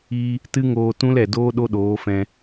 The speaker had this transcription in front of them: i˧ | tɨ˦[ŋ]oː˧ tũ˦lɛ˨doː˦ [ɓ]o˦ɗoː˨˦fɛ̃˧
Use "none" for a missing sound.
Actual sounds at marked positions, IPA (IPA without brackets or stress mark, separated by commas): ŋ, ɗ